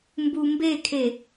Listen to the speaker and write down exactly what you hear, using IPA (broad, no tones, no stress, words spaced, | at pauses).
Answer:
mbumbekʰe